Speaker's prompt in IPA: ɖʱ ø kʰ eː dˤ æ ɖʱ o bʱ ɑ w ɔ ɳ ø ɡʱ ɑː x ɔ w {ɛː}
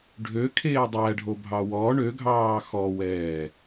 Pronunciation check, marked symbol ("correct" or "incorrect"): correct